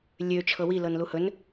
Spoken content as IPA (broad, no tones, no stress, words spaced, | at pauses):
lʲø t͡ʃʰɤwilɤn luhɵn